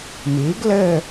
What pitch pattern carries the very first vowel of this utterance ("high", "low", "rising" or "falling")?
rising